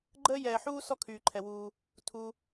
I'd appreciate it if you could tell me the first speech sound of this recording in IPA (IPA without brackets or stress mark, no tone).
ɡ͡ǃ